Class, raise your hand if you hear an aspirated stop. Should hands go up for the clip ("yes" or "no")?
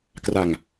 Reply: no